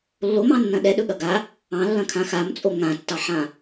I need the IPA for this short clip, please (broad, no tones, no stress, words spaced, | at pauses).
lːomɑ̃nːɐ̃ ɗɛɗɵɠɐ ɡa | ɑ̃lːɐ̃kʰã xamt͡sʼo ŋãtːɑħã